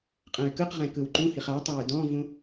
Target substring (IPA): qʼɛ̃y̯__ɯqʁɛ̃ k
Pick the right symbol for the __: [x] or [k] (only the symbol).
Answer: k